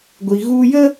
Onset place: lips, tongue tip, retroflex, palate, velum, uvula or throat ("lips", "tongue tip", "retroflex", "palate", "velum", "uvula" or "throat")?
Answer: velum